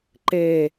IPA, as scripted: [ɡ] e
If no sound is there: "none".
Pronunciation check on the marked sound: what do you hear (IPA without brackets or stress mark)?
ǃ